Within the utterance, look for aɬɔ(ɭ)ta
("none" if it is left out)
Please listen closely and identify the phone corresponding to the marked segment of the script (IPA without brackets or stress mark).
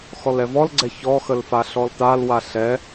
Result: l